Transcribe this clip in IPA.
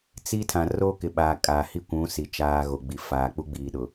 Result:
t͡s i˦ tʰ ã˨ r oː˦ k ɪ˨ ɓ aː˨ kʼ aː˨ h i˦ kʷ ũ˨˦ s i˨ t͡ʃ aː˨ ɣ o˨ ɡ͡b i˨ f aː˨ k͡p u˦ ɡ͡b iː˨ ɗ ʊ˨

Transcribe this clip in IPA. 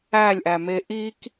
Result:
æ lʲ ʔ æ m e ʔ i k

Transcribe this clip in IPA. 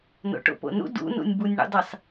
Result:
n o̰ ʈ o̰ p o̰ n ṵ d ṵ n ṵ nʲ b u nʲ ɳ ṵ dˤ i sˤ

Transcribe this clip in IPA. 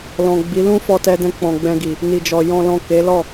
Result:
l ɔ̃˨ ɡ͡b i˨˦ l ũ˦ f ɔ˧ t ɛ˧ d ɛ̃˧ k͡p ɔ̃˨ ɡ͡b ɛ̃˧ ɡ i˨ | n i˨ d͡ʒ ɔ˨ j ɔ̃˨ l ɔ̃˨ k e˨˦ l ɔ˦˨

